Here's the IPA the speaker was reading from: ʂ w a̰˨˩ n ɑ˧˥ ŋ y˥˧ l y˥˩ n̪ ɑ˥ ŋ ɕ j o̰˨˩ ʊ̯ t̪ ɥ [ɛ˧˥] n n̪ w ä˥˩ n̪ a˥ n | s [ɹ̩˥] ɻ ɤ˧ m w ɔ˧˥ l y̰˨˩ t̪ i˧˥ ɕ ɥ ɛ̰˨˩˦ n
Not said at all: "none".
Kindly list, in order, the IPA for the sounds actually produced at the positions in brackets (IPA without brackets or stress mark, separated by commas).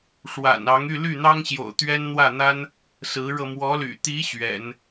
ɛ˥, ɹ̩˧˥